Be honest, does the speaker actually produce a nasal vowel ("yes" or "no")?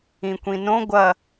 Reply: yes